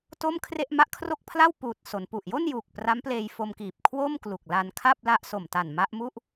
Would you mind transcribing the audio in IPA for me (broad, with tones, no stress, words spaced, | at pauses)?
to˥˩mkʰre˥˩ʔ ma˦˥ʔkʰro˥˩k̚pʰla˥˩w puː˨˩t̚so˩˦npu˨˩ʔ jo˥˩njuː˨˩k̚ pra˦˥mpleː˧j fo˧mkiː˨˩p̚ kʰwo˥˩mklu˨˩k̚ la˧nkʰa˥˩p̚ la˥˩ʔ so˨˩mta˨˩nma˦˥ʔmu˥˩ʔ